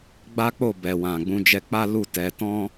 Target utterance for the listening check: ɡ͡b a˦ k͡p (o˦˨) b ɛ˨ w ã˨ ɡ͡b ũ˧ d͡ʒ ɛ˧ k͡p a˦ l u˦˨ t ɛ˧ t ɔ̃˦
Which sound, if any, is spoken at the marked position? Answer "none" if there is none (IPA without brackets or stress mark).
o˦˨